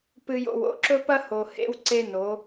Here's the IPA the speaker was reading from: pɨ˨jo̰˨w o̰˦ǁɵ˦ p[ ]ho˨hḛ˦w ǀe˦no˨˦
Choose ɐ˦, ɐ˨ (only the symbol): ɐ˦